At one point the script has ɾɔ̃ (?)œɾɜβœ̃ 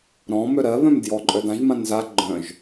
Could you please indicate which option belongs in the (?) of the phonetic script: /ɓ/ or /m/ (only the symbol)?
m